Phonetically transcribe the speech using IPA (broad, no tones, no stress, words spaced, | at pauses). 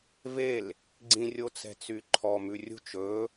vel | ɡ͡ǀĩrʲot͡sɛ̤ t͡syǃʰɔmʉ rʲṳt͡ʃ ɵ